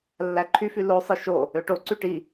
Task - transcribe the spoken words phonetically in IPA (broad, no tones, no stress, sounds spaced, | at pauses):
lː æ ǃʰ y f y l o sˤ ɯ ʃ o | ø ʈ o ǀ y ʈ i